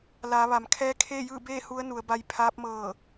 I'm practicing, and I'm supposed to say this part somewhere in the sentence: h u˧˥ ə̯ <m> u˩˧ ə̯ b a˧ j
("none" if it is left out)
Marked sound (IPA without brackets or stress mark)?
n